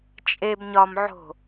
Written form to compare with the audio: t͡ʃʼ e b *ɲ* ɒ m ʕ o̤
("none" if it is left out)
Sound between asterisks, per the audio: ɲ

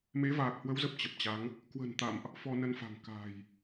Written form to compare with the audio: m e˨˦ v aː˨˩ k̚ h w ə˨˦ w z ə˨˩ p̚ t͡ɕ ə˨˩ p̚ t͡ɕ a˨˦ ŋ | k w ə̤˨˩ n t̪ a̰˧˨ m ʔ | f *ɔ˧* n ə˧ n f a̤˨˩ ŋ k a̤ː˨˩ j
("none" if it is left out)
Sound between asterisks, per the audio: ɔ˧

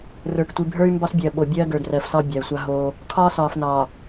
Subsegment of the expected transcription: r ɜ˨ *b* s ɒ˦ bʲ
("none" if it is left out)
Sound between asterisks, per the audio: f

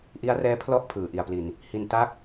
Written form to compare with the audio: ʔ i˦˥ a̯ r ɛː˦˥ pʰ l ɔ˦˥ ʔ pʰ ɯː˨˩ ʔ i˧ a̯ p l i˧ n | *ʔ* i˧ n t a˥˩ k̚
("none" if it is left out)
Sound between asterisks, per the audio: h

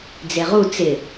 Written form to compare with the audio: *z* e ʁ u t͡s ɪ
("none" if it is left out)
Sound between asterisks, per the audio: d͡z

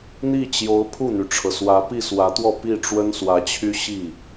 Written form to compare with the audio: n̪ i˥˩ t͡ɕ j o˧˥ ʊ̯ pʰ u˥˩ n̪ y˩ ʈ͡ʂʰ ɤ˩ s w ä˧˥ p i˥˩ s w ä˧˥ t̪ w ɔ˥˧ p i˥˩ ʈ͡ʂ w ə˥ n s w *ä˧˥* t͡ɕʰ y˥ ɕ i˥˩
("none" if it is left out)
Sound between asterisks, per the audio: ä˧˥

